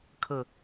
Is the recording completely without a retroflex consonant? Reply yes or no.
yes